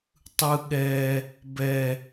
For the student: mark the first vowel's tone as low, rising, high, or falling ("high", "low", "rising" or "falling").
low